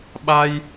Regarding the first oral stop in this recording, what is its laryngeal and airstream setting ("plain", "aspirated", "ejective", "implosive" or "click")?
implosive